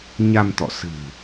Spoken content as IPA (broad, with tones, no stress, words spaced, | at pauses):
ɲa˧mt̪ɔ̰˧˨ sɨ̤˨˩